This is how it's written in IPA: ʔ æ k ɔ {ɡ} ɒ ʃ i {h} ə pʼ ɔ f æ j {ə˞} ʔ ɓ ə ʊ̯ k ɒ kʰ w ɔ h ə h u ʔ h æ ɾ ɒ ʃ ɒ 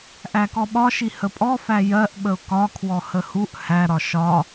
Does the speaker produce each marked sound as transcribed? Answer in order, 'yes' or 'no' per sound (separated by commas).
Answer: no, yes, no